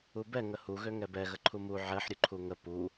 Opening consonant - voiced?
yes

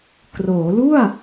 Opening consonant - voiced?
no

